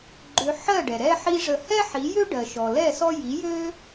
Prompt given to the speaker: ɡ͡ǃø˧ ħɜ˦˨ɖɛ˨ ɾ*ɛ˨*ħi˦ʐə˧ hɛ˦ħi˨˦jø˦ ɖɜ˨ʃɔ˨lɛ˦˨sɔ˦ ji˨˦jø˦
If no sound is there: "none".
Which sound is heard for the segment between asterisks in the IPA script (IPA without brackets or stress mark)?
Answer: ɛ˦